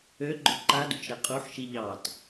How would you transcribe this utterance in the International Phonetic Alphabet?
øɡ͡ǃʊ ǃadṵt͡ʃɾɛ qʼuħʃi ʎɑt

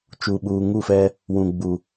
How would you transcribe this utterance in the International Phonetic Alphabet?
t͡ʃu˨ɓuː˨ŋu˦˨fɛ˦ | wũ˨ ɡ͡bu˨

